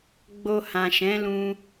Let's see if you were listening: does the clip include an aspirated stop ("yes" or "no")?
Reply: no